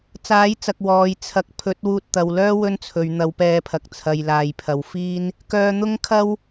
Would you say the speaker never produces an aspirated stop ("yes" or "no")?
no